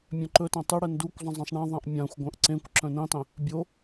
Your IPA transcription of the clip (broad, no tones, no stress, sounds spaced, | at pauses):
mʲ œ̃ ǃ ɵ t ã tˤ ɨ ɽ ɛ n d u kʷ zˤ ə̃ zˤ ẽ sˤ ɳ ã ðˤ ã ʔ mʲ ã xʷ ɡʷ œ̃ ʔ ǀ ẽ kʷ ǁ œ̃ n ẽ tˤ ẽ | bʲ o